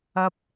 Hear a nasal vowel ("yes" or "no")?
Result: no